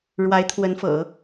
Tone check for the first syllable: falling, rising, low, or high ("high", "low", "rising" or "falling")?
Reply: rising